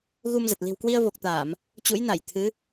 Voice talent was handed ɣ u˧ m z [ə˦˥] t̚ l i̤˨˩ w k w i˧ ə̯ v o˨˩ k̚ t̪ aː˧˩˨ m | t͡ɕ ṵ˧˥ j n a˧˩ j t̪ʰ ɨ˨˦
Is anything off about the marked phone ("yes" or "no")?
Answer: yes